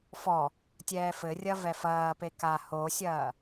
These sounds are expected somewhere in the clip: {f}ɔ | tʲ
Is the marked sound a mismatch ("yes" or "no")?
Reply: no